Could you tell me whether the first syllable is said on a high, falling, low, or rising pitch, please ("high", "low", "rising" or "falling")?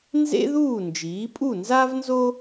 high